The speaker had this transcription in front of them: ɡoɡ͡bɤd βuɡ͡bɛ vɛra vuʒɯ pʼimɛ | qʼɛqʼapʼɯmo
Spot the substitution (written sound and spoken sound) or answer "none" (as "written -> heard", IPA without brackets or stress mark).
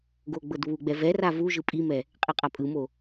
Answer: none